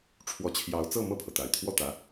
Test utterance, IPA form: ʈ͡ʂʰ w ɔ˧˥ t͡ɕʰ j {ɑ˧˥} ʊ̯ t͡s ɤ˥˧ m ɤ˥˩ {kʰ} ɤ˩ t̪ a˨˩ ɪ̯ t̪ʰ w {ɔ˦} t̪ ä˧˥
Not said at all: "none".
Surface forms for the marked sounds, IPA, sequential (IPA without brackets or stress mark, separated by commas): ɑ˧˥, pʰ, ɔ˥˩